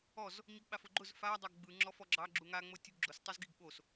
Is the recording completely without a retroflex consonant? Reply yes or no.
yes